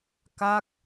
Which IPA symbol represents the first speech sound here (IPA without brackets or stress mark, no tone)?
k